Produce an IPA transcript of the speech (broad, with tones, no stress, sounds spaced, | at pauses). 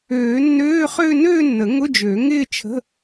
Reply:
øː˨˩˦ nː øː˧˥˧ χ ø˥˧ n øː˥˧ nː ə˨˩˦ ŋ ʊ˧˥˧ d͡ʒ ø˨˩˦ ŋ ɪː˥˧ t͡ʃʰ ə̤˧˥˧